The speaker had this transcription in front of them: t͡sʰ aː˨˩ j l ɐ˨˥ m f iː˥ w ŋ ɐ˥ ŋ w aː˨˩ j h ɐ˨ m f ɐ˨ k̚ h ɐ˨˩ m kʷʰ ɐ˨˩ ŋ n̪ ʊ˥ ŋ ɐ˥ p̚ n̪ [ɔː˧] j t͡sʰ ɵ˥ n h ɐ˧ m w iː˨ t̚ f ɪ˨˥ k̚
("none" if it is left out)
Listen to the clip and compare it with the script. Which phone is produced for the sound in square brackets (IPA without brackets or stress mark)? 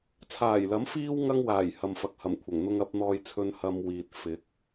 ɔː˥